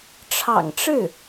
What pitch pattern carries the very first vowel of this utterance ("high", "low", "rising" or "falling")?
low